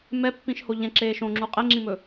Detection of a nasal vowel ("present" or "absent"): present